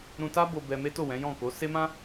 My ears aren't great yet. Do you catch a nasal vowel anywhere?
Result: yes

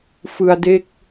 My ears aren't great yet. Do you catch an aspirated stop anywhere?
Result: no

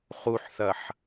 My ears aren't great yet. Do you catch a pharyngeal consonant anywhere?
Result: yes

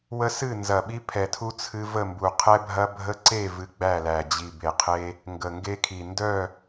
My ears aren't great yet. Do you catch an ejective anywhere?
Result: no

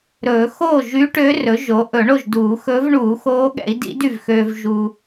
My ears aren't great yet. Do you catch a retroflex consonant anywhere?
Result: yes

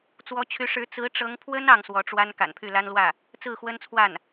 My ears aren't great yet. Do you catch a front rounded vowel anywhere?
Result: yes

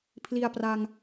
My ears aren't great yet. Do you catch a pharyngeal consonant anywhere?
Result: no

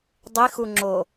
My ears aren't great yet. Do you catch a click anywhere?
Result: yes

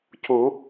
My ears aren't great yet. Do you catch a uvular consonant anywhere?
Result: no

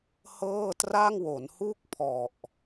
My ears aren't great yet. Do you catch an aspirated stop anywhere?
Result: yes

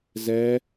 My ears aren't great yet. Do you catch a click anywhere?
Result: no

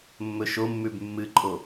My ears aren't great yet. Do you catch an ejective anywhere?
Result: yes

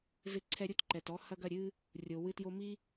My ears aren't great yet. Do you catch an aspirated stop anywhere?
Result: yes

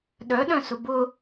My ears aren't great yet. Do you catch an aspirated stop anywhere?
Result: no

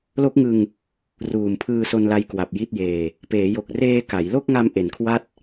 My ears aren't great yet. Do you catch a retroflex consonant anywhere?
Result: no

